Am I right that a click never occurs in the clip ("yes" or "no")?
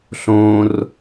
yes